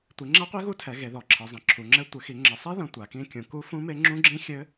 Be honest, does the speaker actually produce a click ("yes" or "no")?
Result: yes